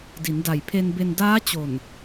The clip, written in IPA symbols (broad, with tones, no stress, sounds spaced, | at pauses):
d i˩˦ n d a˨˩ j pʰ e˧ n b e˧ n d aː˦˥ t͡ɕ o˨˩ n